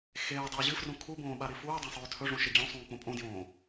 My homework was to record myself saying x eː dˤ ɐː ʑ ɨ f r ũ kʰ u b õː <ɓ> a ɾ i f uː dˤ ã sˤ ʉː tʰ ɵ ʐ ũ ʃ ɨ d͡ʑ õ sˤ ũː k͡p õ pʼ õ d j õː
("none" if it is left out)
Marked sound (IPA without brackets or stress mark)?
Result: ɓ